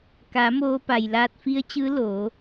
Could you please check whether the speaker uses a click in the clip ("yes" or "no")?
no